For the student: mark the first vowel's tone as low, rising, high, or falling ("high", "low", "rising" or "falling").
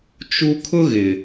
high